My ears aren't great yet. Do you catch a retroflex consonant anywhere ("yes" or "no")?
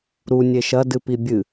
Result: no